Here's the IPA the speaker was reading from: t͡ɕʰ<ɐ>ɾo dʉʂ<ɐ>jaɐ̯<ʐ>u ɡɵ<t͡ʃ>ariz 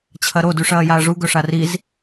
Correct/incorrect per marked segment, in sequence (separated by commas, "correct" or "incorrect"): correct, incorrect, correct, incorrect